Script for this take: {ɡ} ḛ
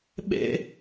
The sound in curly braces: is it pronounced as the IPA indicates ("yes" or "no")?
no